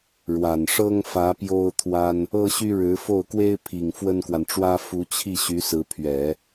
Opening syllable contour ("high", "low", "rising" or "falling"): low